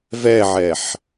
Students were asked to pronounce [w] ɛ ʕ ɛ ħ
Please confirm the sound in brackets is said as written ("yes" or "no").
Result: no